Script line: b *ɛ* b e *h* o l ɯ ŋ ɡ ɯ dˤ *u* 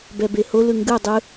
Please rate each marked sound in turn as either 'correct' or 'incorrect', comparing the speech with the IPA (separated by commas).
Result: correct, correct, incorrect